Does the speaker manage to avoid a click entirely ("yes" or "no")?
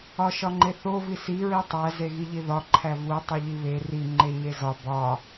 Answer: no